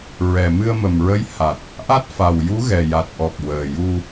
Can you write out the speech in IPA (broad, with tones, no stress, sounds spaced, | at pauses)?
ɹ ɛ˨˩ m ɨ˧ ə̯ m ə˨˩ m ɹ ə˧˥ j h a˨˩ t̚ | ʔ a˦˥ t̚ f a˨˩ w j u˧˥ ɣ ɛ˨˩ j a˨˩ t̚ ʔ ɔ˨˩ k̚ w əː˨˩ j u˧